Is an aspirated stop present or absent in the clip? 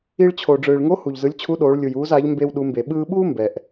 present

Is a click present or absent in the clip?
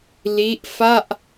absent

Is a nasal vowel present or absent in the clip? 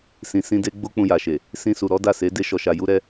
present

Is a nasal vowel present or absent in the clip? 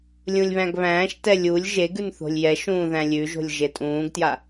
present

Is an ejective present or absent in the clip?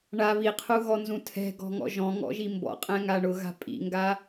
present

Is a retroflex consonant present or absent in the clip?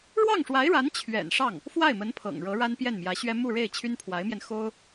present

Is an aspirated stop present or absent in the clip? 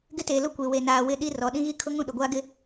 present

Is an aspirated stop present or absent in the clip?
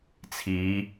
present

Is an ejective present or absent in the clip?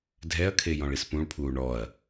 absent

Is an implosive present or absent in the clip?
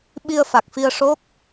present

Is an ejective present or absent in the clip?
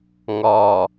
absent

